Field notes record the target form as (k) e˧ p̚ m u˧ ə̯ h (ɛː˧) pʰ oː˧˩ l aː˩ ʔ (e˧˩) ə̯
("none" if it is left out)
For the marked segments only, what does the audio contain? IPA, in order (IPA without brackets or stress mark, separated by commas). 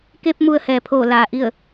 k, ɛː˩, i˧˩